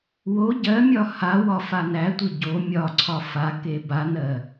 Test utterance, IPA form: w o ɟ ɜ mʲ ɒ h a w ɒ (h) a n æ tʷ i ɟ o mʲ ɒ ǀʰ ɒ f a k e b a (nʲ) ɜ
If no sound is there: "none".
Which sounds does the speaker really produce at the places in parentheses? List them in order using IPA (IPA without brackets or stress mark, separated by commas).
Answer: f, n